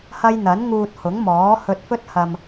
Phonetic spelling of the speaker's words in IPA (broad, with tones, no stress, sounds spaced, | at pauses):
h ɐ˥ j n̪ ɐ˨˥ n ŋ uː˧ t̚ h ʊ˨˥ ŋ m ɔː˨˥ h ɵ˧ t̚ f ɵ˥ t̚ h ɐ˧ m